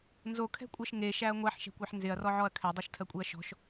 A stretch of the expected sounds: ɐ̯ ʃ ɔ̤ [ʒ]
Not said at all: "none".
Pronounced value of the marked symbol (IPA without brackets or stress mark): ʃ